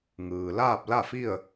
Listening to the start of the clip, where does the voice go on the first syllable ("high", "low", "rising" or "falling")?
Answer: low